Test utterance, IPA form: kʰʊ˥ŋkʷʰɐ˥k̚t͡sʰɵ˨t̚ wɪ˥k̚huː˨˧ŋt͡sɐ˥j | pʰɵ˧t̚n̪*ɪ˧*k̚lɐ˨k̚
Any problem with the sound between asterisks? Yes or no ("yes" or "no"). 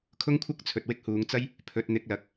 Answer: no